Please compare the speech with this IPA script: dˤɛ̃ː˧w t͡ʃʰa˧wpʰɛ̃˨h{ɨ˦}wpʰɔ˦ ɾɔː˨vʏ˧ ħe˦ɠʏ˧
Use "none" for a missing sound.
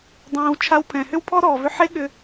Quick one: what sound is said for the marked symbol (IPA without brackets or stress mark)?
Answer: ʏ˦